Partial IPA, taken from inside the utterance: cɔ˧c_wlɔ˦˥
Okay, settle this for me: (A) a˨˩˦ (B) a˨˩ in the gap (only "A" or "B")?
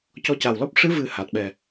B